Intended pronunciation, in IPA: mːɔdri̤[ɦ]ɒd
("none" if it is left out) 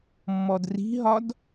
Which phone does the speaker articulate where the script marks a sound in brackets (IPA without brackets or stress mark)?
ɦ